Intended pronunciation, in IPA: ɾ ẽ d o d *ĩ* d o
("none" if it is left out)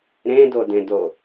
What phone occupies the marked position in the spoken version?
ẽ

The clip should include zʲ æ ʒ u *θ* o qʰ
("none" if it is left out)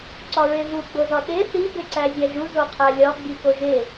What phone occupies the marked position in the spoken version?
z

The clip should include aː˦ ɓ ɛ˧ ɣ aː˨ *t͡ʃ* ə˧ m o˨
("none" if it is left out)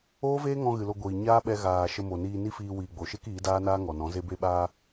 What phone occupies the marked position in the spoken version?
ʃ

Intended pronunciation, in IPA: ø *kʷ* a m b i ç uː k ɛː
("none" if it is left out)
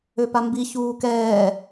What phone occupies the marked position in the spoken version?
p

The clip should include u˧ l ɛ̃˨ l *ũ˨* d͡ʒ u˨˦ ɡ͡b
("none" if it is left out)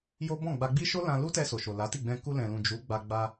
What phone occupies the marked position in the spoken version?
ũ˨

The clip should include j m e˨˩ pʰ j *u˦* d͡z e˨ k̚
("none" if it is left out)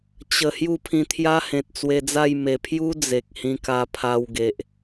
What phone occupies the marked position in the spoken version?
u˦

